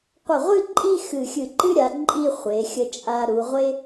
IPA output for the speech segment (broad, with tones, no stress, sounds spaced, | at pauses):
qʷ ə˧˩ ʁʷ ɨ˥˧ ǃʼ i˥˧ x ɨ˧˩ xʲ ɨ˧˩ ǃ ɨ˥ ɾʲ a˩˧ ǃʼ i˥˧ χʷ e˩˧ xʲ ə˧ t͡ʃʼ a˧ ɾ u˩˧ ʁʷ e˥